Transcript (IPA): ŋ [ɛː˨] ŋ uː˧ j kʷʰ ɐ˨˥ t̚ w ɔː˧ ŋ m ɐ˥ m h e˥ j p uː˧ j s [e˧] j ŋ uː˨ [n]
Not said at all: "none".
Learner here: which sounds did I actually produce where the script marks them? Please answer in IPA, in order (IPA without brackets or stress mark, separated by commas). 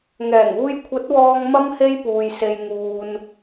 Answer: ɛː˨˩, e˧, n